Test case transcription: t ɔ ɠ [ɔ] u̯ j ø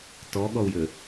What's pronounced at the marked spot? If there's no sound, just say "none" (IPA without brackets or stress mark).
ɔ